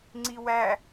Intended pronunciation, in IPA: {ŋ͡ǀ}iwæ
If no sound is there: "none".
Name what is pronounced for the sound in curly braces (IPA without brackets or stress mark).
ŋ͡ǀ